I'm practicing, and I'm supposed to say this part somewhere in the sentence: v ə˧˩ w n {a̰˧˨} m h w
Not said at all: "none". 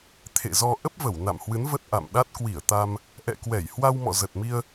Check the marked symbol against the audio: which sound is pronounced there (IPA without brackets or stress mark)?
a̰˧˨